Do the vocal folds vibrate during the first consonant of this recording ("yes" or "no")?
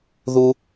yes